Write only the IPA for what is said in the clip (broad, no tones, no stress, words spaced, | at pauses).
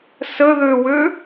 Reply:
səðøwø